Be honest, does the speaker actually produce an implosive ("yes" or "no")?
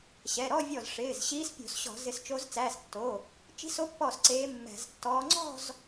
no